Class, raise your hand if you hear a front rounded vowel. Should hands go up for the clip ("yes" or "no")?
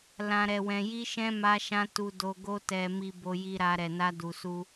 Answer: no